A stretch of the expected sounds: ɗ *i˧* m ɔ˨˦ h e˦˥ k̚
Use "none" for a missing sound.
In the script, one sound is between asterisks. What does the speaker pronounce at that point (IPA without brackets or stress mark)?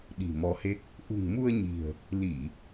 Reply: i̤˨˩